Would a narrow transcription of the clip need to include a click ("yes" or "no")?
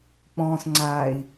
yes